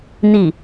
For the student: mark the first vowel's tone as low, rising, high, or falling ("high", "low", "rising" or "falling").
falling